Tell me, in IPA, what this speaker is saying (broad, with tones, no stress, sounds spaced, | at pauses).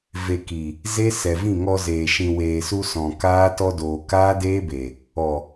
v e˨ k i˨ | z e˦ s ɛ˨ v ĩ˦˨ ŋ ɔ˧ z eː˨ ʃ ĩ˨ w eː˨ s u˧ s ɔ̃˨ k aː˦ t ɔ˧ d oː˨ k aː˦ d eː˦ b e˨ | ɔ˨